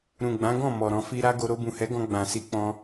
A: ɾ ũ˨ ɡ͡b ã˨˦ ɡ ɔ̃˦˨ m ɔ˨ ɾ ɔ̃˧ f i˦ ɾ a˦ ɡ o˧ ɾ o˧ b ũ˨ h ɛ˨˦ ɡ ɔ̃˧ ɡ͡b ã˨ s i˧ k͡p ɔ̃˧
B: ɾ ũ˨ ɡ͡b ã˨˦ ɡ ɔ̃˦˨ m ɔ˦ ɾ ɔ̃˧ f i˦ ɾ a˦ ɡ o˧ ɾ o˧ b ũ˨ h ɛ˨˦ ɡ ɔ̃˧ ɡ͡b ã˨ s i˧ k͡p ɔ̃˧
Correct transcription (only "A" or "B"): A